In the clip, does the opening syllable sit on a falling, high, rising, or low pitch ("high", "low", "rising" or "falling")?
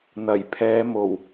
low